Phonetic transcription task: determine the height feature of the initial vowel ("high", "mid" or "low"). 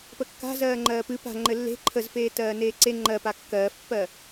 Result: mid